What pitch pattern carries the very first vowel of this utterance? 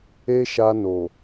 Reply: high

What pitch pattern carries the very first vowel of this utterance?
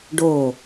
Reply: falling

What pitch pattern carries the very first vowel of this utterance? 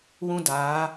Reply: high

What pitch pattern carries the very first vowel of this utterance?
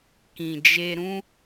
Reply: low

